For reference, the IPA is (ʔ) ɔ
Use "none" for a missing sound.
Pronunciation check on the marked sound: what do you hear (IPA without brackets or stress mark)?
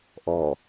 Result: ʔ